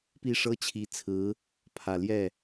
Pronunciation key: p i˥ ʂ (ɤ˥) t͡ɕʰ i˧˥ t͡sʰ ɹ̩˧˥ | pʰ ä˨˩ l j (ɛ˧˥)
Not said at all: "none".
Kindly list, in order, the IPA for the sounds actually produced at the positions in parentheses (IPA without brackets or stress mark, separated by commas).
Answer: ɤ˥, ɛ˥˩